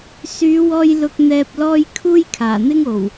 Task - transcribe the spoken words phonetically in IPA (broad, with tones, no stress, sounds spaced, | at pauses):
s yː˨˧ w ɔː˧ j l ʊ˨ k̚ n̪ ɛː˨ p̚ l ɔː˧ j kʰ uː˥ j kʰ aː˨˩ n̪ ɪ˥ ŋ o˨˩ w